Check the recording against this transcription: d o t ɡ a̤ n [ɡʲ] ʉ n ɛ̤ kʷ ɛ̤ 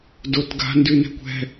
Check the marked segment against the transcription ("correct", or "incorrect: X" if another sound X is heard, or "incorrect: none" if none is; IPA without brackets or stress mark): incorrect: d